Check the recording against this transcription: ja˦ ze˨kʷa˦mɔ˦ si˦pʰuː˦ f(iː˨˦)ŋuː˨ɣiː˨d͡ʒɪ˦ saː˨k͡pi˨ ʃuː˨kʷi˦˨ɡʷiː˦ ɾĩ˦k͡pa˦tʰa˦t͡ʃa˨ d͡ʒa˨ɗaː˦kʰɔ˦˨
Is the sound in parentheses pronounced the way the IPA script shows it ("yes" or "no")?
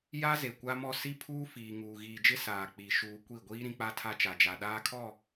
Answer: no